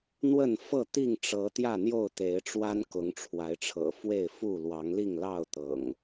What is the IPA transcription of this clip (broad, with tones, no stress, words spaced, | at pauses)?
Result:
n̪wə˥˨nfɤ˥˨ t̪i˥˨ŋʈ͡ʂɤ˨˦ t̪jä˥˨n̪jo˥˨ʊ̯t̪e˨˦ɪ̯ʈ͡ʂwa˦n kʊ˨˦ŋʈ͡ʂʰwa˨˦ɪ̯ʈ͡ʂʰɤ̰˨˩ fwe˥˨ɪ̯fu˥˨ lwɑ˨˦ŋli˥˨ŋlɑ˥˨ʊ̯t̪ɤ̰˨˩ŋ